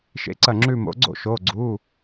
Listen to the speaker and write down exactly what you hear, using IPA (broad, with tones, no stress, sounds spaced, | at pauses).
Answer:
ʃ ḛ˨˦ ǀ ɐ˧˩ ŋ͡ǁ ʉ˧˩ m o̰˨˦ ɡ͡ǀ o̰˥˩ ʃ o˩˧˩ ɡ͡ǀ u˩˧˩